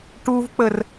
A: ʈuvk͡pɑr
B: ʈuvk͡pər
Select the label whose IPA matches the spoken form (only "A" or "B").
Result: B